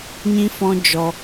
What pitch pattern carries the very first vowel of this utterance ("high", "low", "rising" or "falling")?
high